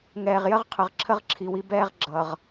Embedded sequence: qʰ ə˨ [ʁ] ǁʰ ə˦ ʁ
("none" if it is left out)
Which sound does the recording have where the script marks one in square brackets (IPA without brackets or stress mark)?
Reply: ʁ